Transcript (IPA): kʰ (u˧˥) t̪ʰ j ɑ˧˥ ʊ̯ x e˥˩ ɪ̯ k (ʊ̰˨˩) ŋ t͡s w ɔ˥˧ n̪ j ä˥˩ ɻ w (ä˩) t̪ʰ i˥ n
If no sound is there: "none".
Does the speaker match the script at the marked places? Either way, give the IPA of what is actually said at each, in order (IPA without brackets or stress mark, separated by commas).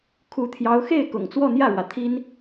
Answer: u˧˥, ʊ̰˨˩, ä˩